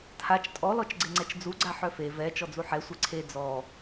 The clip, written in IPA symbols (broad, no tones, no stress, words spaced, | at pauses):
tʰat͡ʃ tʼɔ lɔt͡ʃɡ͡ǀeŋ͡ǀɛt͡ʃd͡zu ɡ͡ǀaħœfe vɛ t͡ʃɔd͡zuħɛ sʷeǀʰe d͡zɔ